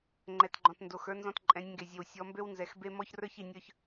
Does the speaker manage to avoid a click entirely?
no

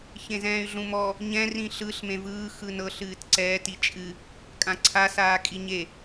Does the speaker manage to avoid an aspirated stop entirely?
no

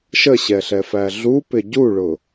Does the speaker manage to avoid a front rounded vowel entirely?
yes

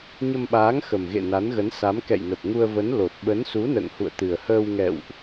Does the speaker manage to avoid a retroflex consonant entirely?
yes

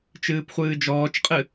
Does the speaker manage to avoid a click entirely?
yes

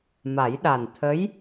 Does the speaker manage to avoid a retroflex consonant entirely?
yes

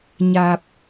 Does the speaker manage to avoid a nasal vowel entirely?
yes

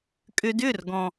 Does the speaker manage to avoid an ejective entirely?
no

